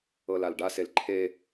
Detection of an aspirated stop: present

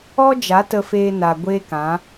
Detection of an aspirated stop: absent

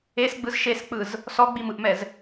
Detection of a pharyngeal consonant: absent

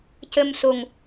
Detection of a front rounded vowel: absent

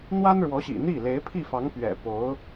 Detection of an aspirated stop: present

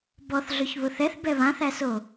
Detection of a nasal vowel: present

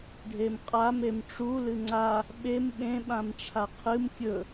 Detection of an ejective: present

